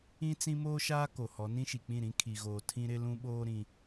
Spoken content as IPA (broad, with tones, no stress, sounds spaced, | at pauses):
ĩ˦ t͡s ĩ˦ m oː˦ ʃ aː˦ k o˨ h ɔ˨˦ n ĩ˦ ʃ i˨ k͡p ĩ˦˨ ɾ ĩ˦ kʰ i˨ ɣ oː˨ tʰ ĩ˦ ɾ ɪ˦ l ũ˦ ɓ oː˦ ɾ ĩ˦